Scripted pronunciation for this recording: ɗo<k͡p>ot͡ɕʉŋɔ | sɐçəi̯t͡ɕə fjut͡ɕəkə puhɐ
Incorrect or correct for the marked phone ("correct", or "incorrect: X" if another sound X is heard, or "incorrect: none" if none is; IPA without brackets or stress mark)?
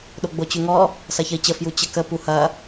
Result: incorrect: ɡ͡b